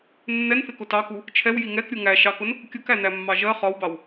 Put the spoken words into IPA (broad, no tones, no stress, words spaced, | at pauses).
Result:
nːɛnθɪ kʊtɑku | t͡ʃʰɛw jiŋɛk ɾʲuŋæ ʃɑkʊn | kʲʊkænæ mːɑʒɜ χɒwbɑw